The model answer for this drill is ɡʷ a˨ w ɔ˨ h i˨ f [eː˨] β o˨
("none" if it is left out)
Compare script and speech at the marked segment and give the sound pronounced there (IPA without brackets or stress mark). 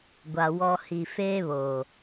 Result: eː˦